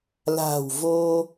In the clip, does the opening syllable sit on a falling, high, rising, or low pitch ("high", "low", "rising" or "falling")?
low